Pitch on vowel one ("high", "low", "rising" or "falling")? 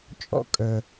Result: high